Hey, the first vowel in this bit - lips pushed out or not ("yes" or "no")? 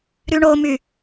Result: yes